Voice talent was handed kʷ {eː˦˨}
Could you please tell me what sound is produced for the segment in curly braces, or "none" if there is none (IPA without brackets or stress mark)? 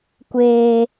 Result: eː˨